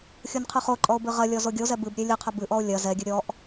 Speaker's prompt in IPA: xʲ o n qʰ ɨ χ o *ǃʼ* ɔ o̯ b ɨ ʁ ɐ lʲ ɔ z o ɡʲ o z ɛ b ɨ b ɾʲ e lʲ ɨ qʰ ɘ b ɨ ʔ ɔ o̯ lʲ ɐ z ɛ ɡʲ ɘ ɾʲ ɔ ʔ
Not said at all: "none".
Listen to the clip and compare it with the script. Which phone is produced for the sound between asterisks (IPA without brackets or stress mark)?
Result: ǃʼ